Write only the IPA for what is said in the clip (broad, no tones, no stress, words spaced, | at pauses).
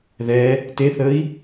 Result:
ðɛ | teθəi̯